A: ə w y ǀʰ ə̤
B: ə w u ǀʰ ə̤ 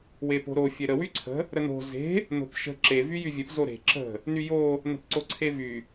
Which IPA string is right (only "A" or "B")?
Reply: A